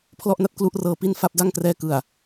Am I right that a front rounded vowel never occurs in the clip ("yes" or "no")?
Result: yes